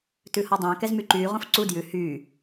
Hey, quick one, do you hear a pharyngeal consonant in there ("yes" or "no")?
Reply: no